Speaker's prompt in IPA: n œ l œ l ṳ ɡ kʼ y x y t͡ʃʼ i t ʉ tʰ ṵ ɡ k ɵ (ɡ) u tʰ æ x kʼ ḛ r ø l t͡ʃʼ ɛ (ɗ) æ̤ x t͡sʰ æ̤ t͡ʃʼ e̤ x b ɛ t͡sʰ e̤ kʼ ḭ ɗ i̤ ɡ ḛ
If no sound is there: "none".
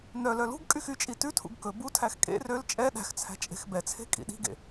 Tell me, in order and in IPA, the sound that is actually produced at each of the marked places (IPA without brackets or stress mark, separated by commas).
b, ɗ